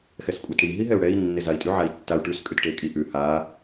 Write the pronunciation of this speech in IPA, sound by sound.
xɛskʷʼɛtɽi ɦiɦɛu̯ɽɛi̯ nːezai̯tʼʉ ʕai̯tːau̯ ʈʉs kʼʉtʈekʼiʔʉ ha

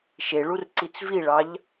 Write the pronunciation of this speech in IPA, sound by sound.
ʃeɭur ǀit͡sviɭɑʎ

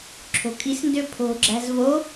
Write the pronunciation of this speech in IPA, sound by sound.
ǁʰo̤kʼisndø pʰo̤ɡ͡ǁæ̤z vo

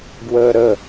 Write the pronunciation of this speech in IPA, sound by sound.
ɡwəːɾə

